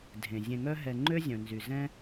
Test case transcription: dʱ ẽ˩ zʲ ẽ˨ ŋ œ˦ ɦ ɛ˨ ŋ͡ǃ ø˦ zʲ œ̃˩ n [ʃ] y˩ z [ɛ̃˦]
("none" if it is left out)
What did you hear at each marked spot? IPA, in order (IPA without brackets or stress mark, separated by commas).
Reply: z, ɛ̃˦